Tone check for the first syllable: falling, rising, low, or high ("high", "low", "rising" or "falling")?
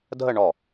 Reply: falling